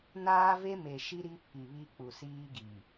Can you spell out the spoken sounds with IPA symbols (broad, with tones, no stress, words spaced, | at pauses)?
naː˦ve˦me˨ʃi˦ ɾi˦pʰi˨βi˦ k͡pu˨siː˦ɡi˨